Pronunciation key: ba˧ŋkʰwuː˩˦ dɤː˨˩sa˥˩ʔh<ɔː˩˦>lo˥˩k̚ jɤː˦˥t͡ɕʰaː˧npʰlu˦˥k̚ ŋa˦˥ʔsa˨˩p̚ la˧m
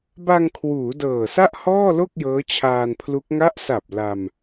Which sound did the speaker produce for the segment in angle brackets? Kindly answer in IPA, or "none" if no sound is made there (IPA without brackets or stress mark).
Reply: ɔː˥˩